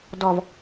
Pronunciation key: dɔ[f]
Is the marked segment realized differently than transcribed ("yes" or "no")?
yes